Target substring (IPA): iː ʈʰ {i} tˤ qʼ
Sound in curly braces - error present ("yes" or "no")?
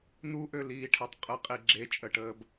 yes